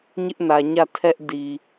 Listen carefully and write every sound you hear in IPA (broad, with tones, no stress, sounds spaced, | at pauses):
ɲ ɪ˦ ʔ n ä˨ ɲ ä˦˨ tʰ ɛ˦ ʔ d i˨